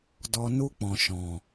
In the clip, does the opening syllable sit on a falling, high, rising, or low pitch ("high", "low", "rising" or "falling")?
low